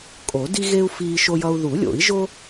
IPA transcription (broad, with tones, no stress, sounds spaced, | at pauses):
kʼ o˨˩˦ d i˦ ɣ e˦ u̯ f iː˦ ʃ o˦ j ʌ˦ u̯ ð u˨˩˦ lʲ o̰˨˩˦ i̯ ʒ o˦